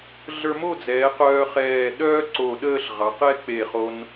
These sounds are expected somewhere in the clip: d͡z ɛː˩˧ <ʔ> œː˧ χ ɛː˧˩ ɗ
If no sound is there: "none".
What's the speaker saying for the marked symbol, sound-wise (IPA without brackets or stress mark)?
q